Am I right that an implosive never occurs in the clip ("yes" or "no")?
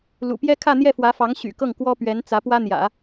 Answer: yes